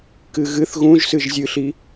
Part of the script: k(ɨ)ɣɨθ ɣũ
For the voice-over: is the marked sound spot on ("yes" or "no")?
yes